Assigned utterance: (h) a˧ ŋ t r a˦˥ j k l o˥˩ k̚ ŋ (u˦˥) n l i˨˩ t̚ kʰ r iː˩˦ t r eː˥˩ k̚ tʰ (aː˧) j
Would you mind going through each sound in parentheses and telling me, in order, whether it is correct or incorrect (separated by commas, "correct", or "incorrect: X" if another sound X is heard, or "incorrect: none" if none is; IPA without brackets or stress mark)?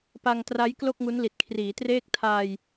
incorrect: p, correct, correct